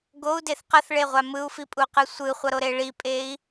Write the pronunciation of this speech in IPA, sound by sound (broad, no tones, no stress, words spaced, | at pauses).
ɡou̯deθ qʌθɭeʁʷa mɯu̯fipʼuqɯ sʷɯχʷʌɾoɾe ɭipʼei̯